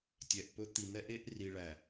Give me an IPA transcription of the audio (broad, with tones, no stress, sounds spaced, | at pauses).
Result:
tʲ ɛ˨ ʔ p ɵ˦ t̪ i˨ n̪ ɛ˦ ʔ e˦ ʔ r i˨ ɭ æ˨